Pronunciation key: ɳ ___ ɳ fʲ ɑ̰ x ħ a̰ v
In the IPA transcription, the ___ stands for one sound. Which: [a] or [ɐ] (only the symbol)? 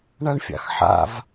a